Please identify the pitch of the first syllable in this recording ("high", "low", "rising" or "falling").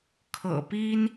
low